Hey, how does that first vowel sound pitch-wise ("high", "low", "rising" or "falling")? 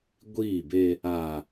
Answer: falling